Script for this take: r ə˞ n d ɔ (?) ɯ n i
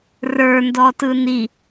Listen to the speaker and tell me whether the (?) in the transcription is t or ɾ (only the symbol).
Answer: t